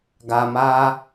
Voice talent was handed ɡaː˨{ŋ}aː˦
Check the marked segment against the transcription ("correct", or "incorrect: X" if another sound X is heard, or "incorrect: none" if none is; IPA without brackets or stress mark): incorrect: m